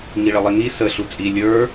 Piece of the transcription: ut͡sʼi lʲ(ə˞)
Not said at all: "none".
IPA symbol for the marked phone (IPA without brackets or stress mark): ə˞